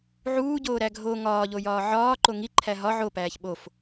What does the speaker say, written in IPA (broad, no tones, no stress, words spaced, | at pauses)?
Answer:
ʕuːɟoːɾæ ɡʱo ŋɒːʎojɒː ʕɒːǃo ŋiǃʰæ ɦɒ ʕopæːç ɓof